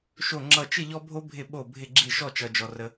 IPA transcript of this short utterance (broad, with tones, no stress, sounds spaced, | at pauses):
ʃ o˥˨ ŋ͡ǁ ʌ˥˨ t͡ʃ ɪ˥˨ ʎ ɔ˦ bʱ o˦ bʱ ɪ˥˨ ɓ o˥˨ bʱ ɪ˥˨ ɡ͡ǁ i˥˨ ʃ ɔ˥˨ t͡ʃ ʌ˦ d͡ʒ ɔ˦ r ə˦